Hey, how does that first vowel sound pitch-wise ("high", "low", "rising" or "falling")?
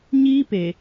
high